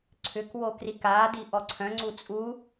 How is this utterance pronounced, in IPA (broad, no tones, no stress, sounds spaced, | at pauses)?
ǀʰ ʏ k w o k r i k aː d i ʔ ɔ ǀʰ œ̃ ŋ͡ǀ u t͡sʼ u